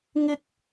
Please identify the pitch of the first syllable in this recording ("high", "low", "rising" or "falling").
high